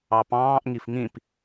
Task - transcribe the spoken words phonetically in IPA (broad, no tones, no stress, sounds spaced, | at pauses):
ɑ p ɑ̃ː ʔ ŋ i f ŋ ĩ p